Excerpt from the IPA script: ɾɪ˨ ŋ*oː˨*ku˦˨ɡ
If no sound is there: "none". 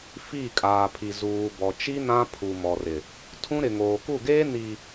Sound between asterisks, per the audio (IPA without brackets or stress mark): oː˨